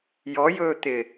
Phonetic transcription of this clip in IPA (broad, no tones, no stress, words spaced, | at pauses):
jɔjɵː t̪ɪ